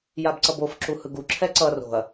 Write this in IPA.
jabǀʌbof ǁuhɯɡu ǁʰɛǀʌ ro̤ɐ̯

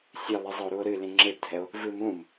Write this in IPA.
sʲɨlˠɨzˤəo̯ɾuo̯ ɾɨ lĩŋ͡ǁebdʱɛo̯ | vɨmũm

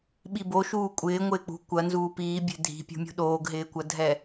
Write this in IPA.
ɓiboʃuː kʷʼɪː ŋʷɪːk͡pṳ kʷɐnzuː piːbʲɛ̤ dʱi̤pʲṳmʲṳ ɗoːɡɦɪːkʷɐdʱɛ

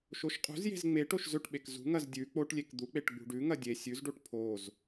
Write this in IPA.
ʃoʃqʼṳzje̤z ŋ͡meʈ oʃzɵʈɓek zṳŋɐz dʲʉ k͡poʈlʲek d̪uk͡peʈ ɡ͡bṳɖʉŋɐ dʲe sʲʉzɖoʈ pʰoz

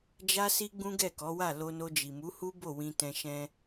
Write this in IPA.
d͡ʒa˧si˧ ɡ͡bũ˦ɡɛ˦˨kɔ˨˦wa˦˨ lo˧no˧ d͡ʒi˨mu˨˦hu˦bo˦˨ wĩ˧tɛ̃˧ʃɛ̃˦

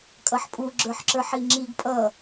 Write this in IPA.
kʼʌħpʼu ɡ͡ǁə˞ħǁə˞ħiŋ͡ǁiɡ pʼʌ

